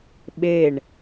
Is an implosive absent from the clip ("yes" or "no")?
no